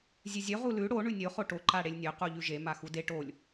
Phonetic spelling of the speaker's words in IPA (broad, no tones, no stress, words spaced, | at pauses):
zʲʉzʲɵ ʁulʉ ɽo ɳʉnʲo χoʈo ǃaɽelʲnʲɵ quʎʉʒe maxude ʈolʲ